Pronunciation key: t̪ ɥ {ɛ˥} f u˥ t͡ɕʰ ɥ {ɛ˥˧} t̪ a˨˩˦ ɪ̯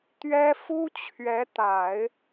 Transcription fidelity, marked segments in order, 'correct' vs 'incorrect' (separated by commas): correct, incorrect